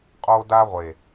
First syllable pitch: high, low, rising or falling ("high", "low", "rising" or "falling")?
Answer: high